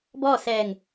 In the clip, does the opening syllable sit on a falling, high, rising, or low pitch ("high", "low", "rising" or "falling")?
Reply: falling